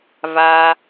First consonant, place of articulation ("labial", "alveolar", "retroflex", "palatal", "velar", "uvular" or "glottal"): labial